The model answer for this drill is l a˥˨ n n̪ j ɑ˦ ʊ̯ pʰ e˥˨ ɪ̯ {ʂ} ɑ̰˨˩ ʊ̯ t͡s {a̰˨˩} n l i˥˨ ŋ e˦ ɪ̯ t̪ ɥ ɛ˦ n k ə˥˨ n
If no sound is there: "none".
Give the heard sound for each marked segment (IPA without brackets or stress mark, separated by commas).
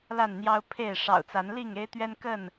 ʂ, a˨˦